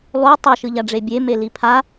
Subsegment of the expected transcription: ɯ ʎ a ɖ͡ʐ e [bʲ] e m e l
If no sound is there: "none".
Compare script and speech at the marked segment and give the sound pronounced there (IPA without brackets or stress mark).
bʲ